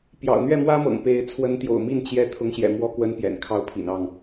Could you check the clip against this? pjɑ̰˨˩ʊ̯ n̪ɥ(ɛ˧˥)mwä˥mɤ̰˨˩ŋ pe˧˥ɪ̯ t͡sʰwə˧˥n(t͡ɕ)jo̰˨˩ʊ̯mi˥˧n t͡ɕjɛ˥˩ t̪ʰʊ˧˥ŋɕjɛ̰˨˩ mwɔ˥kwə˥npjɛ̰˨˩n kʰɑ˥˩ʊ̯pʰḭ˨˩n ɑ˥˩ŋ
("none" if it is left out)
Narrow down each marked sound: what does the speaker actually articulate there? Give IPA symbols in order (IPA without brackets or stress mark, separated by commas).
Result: ɛ˥˩, t̪